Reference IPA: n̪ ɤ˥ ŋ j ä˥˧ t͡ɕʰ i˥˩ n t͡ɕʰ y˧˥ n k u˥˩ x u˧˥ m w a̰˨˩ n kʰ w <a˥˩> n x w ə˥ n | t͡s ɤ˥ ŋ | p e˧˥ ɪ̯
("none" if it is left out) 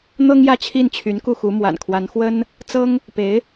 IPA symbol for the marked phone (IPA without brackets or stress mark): a˧˥